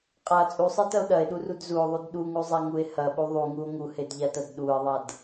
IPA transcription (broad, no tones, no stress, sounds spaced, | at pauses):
qʼ a t͡sʼ u sˤ e t ɐ o̯ ɗ ɐ e̯ ɗ u r u d z u o̯ ðˤ u d ɗ u ŋ u zˤ a ŋ u e̯ h ɐ ɓ u ðˤ u ŋ u o̯ ŋ u h e d ʎ a t ɐ d ɗ u e̯ ðˤ a d